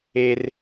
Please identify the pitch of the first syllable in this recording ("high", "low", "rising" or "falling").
low